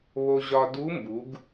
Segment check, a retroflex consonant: absent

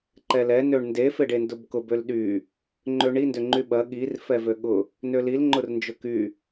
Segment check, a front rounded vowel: present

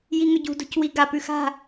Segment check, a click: absent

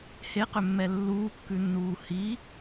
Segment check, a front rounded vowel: present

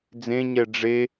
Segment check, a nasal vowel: present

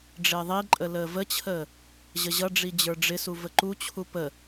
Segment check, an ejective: present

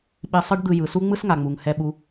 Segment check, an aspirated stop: absent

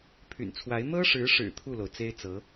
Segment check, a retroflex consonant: present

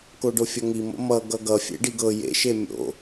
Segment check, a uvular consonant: absent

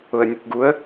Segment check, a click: absent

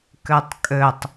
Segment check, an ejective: present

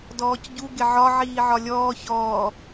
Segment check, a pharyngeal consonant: present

